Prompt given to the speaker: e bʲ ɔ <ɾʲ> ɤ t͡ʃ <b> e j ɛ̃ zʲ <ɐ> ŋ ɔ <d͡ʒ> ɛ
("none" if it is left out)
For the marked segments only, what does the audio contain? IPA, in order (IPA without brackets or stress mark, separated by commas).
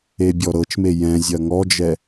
ɾ, m, ɐ, d͡ʒ